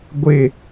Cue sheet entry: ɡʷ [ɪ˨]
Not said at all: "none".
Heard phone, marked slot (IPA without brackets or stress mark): ɪ˦˨